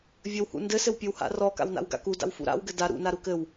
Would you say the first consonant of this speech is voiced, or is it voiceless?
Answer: voiced